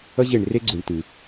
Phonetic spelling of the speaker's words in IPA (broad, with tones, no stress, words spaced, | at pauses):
ʌ˥ʑe˦˨ɳre˥ ɡ͡ǀu˨˩ɳtɨ˧˩˧